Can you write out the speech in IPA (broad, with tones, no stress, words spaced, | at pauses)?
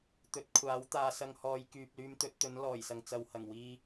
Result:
t̪ɵ˨˥t̚kʷʰaː˨˥w t̪aː˧sɐ˧ŋ hɔː˨˧jkyː˨p̚ lyː˧mt̪ɵ˨˥t̚t̪ɵ˨˥n lɔː˨˩jsɐ˨ŋ t͡sɐ˨whɐ˨˩ŋ wiː˧